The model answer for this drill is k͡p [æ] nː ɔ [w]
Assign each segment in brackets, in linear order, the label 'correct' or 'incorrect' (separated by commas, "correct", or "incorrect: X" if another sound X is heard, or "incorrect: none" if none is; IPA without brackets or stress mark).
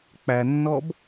correct, incorrect: b